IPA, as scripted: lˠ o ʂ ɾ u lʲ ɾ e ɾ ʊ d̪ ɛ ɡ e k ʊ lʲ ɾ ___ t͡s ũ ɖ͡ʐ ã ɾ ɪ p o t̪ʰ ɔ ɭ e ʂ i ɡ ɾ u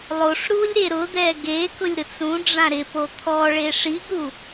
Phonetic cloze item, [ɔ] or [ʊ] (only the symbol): ʊ